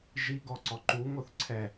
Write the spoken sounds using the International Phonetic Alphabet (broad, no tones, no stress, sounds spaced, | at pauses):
ʒ i ɡ ɔ ǀ ɔ ǃ u ŋ o θ ǀʰ ɛ